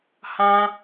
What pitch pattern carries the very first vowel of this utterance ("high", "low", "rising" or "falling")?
high